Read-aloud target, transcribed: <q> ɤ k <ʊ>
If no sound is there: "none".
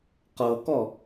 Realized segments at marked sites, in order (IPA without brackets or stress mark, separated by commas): q, ɔ